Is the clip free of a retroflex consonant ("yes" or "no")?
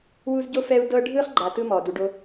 no